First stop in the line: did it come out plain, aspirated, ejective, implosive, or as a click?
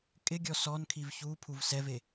ejective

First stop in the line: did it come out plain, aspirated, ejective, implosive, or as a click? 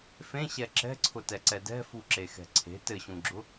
click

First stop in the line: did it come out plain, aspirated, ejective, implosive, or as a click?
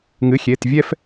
plain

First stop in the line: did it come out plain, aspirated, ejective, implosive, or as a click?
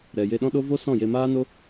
implosive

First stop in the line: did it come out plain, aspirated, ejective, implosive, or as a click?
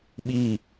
implosive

